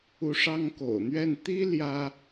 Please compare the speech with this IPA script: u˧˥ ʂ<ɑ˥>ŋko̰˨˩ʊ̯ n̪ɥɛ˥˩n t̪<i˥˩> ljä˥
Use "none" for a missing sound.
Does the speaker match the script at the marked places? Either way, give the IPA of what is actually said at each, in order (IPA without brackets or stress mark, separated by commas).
ɑ˥, i˥